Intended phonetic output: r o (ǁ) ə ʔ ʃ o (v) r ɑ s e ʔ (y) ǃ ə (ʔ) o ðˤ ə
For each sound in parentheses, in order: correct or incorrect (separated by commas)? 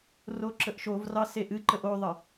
correct, correct, incorrect, correct